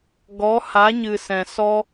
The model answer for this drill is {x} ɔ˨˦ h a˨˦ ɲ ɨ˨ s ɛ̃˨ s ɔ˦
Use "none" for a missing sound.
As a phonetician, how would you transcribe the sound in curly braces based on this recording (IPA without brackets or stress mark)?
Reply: ɡ